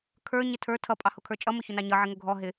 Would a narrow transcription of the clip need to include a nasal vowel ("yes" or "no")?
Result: no